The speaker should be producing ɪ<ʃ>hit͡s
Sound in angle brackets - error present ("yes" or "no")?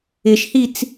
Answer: no